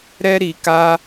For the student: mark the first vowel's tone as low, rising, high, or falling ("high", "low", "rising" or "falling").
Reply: high